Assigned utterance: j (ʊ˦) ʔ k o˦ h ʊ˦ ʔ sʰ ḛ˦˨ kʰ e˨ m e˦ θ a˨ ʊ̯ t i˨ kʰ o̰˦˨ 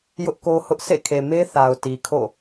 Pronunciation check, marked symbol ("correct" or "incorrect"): correct